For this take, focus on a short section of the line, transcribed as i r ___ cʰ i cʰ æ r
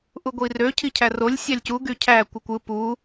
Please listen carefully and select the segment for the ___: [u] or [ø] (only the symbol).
ø